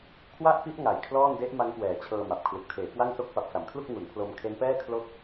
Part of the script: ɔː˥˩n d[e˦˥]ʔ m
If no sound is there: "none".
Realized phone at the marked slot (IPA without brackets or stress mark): e˦˥